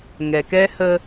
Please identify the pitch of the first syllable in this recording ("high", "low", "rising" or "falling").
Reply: low